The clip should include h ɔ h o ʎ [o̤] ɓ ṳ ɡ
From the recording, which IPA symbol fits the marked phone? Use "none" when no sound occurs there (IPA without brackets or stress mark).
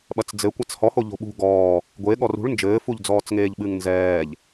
o̤